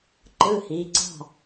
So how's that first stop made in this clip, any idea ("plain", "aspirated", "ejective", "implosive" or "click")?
click